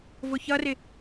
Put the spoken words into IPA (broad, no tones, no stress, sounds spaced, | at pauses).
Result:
v ʊ ç ʌ r ɪ